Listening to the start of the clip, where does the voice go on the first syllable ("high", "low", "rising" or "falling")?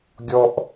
high